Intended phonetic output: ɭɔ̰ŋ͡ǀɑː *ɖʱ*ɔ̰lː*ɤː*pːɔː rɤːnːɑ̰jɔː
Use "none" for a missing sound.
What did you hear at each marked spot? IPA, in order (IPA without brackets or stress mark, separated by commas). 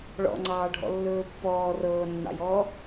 ɖʱ, ɵː